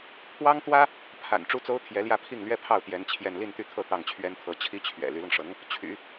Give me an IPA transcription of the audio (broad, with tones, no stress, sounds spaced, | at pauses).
pʰ w ɑ˥ ŋ t̪ w ä˥ | pʰ a̰˨˩ n ʈ͡ʂ u˥ t͡s o˥ ʊ̯ t̪ʰ j ɛ˧˥ l j ä˥˧ pʰ i˥˩ ŋ l ɥ ɛ˥ pʰ ɑ˥˩ ʊ̯ t̪ j ɛ˧˥ n t͡ɕʰ j ɛ˥˧ n l i˥˧ n t̪ y˥˧ t̪ʰ ɤ˥˧ t̪ ɑ˥˩ ŋ t͡ɕʰ ɥ ɛ˥ n t̪ʰ ɤ˧˥ t͡ɕʰ i˥ t͡ɕʰ ɥ ɛ̰˨˩ l y˧˥ l ʊ˧ ŋ ʂ ɤ˧˥ ŋ | t͡ɕʰ y̰˨˩˦